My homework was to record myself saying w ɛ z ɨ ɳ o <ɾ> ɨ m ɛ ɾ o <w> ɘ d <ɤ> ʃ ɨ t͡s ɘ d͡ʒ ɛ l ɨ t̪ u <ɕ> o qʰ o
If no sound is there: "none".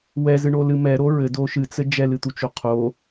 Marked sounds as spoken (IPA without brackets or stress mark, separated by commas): l, ɹ, o, t͡ʃ